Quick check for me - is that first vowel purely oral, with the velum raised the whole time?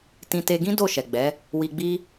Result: no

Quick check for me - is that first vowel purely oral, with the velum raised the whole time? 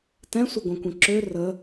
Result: no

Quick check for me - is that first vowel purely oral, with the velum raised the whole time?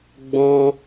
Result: no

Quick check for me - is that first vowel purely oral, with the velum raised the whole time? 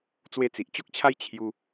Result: yes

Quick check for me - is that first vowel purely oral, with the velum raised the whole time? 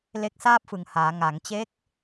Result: yes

